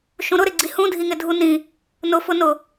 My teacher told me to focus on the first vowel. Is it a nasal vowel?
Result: yes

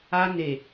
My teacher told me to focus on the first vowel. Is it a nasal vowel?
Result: no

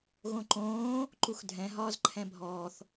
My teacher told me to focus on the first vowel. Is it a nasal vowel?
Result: yes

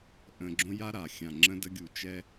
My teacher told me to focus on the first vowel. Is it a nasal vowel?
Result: yes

